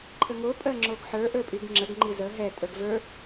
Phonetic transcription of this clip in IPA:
ǃʰ ə ŋ o pʼ ɜ ŋ͡ǁ o ɡ ħ ə˞ ʔ ə˞ pʼ i ɡ ŋ͡ǁ ə ɡ ŋ͡ǃ i z ə ɦ ɛ tʼ ə˞ ɡ v ə˞

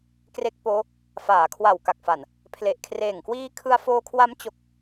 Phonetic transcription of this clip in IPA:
k r e˦˥ k̚ p oː˦˥ | f aː˩˦ kʰ w a˨˩ w k a˨˩ k̚ f a˨˩ n | pʰ l e˨˩ ʔ kʰ r eː˨˩ ŋ k w iː˧ kʰ ɯ˧ a̯ f oː˧ kʰ w a˦˥ m t͡ɕ o˦˥ k̚

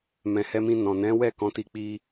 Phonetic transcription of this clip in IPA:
m ɛ̃˨ h ɛ˧ m ĩ˧ n ɔ̃˨ n ɛ̃˨˦ w ɛ˦˨ k ɔ̃˨˦ t i˧ k͡p i˦

